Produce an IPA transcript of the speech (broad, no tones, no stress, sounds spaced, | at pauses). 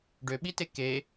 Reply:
ɖ ø ɓ i t e k e